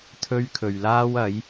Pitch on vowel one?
high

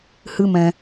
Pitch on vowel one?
high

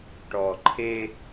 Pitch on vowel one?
low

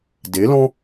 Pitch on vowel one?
rising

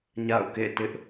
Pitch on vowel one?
falling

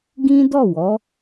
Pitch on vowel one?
high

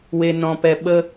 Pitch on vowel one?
low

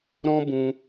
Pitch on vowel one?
high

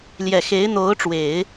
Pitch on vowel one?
low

